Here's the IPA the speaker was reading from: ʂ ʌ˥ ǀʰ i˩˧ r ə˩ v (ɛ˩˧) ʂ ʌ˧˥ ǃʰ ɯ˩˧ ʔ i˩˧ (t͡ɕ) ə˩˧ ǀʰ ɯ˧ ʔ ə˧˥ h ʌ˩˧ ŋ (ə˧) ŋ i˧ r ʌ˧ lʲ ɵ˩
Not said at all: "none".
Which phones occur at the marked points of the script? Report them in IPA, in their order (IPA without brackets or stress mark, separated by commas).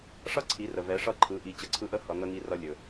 ɛ˩˧, t͡ɕ, ə˧